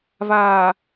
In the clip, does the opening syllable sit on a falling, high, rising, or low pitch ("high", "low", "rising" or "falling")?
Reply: low